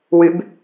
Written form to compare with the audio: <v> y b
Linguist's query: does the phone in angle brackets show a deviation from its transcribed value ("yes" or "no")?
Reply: yes